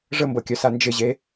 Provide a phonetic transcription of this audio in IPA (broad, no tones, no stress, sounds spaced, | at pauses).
ʐ ə m b ɤ kʲ œ s a n d͡ʒ ɪ ʑ e